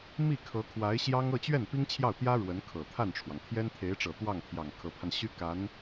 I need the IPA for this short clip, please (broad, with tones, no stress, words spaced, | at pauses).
mi˥˩ kʰɤ˧˥kʰwa˧˥ɪ̯ɕjɑ˥ŋ ɤ˥˧t͡ɕɥɛ˥˩n pi˥ŋt͡ɕʰjɑ˥˩ʊ̯t̪jä˥ ɻwə˧˥nkʰɤ˨˩ t̪ʰa˥˩nʈ͡ʂʰwɑ˩ŋ t̪ʰjɛ˥nt̪ʰe˧˥ɪ̯ʈ͡ʂɤ˨˩ t̪wɑ˥˩ŋt̪ʰjɑ˨˩ŋ kʰɤ˧˥pʰa˧nɕy˥ ka˧˥n